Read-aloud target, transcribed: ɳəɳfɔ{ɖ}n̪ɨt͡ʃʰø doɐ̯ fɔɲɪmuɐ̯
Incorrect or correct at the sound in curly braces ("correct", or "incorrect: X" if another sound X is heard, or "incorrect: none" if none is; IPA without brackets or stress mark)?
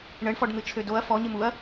correct